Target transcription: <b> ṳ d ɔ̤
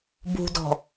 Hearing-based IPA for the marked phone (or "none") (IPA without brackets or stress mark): b